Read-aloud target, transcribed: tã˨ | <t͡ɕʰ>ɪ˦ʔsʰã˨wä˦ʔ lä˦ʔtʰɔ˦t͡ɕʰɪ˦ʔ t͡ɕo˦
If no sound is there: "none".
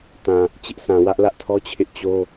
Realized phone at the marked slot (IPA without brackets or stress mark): t͡ɕ